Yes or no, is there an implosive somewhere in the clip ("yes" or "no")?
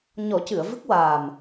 no